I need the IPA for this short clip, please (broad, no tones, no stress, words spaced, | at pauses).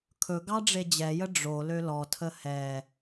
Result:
kʰɵɡɑ ɖ͡ʐed͡ʑɛjə ɖ͡ʐo lølɔtʰə hɛ